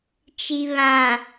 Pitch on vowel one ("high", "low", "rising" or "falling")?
low